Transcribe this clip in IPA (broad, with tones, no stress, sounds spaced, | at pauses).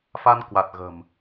f a˧ n k w a˨˩ t̚ ɣ ə̤˨˩ m